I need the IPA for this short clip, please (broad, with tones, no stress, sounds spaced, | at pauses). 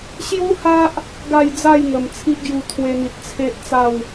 ɕ j u˦ h a˦ ʔ | ɡ a˥˧ j d͡z a˥˧ j ŋ ə˨˩ m t͡sʰ i˦ ʔ ɡ j u˧ t̪ʰ w e˧ n̪ i˨ t̚ t͡sʰ e˦ ʔ t͡s a˥˧ w